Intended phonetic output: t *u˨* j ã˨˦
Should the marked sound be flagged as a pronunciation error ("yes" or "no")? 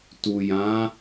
no